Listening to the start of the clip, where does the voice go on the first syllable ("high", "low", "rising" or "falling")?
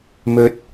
rising